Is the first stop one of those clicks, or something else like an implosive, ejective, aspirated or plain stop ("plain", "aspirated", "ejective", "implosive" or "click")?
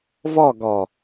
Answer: plain